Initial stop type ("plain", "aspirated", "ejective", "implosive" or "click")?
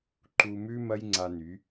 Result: click